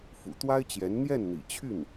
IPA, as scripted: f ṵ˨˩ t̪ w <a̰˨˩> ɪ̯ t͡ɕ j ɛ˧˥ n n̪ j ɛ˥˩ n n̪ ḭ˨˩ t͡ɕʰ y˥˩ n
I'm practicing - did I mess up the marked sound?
yes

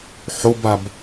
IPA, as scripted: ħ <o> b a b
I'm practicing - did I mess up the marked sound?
no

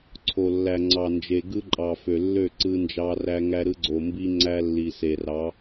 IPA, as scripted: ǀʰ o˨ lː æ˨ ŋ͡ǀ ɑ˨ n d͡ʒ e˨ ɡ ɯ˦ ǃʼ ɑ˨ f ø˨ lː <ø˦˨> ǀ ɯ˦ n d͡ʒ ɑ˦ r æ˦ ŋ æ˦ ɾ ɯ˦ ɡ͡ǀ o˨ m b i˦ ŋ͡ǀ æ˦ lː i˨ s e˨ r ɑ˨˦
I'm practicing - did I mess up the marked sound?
no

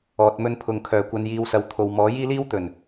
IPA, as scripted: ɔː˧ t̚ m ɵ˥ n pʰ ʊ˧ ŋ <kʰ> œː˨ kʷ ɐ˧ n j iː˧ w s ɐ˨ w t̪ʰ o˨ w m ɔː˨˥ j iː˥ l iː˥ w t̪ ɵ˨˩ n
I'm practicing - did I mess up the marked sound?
no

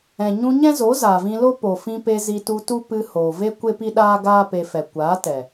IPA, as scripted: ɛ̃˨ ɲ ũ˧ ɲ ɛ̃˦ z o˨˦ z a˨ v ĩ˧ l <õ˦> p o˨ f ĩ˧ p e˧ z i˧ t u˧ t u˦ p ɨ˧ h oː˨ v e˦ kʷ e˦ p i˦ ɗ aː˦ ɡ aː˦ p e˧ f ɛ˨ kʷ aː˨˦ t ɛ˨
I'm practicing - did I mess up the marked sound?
yes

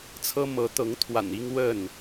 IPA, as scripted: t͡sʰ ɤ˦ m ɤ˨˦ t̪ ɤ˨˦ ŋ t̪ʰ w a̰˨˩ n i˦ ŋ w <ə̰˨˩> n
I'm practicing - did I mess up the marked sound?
yes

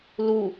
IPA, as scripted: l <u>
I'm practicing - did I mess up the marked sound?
no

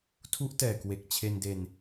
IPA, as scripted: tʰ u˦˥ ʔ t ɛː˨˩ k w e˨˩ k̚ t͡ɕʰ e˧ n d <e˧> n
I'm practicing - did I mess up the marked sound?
no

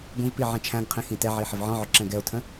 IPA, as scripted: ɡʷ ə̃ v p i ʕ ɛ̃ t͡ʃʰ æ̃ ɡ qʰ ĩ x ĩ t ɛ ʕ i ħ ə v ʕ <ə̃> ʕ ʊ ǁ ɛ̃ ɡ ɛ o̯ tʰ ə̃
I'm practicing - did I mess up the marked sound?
yes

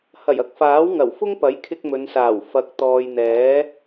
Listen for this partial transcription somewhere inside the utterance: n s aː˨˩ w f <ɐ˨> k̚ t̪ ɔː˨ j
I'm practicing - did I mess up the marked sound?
no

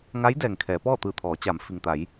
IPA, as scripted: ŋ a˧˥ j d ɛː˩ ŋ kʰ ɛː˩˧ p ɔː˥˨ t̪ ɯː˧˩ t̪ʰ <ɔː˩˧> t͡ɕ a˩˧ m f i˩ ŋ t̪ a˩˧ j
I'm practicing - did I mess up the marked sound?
no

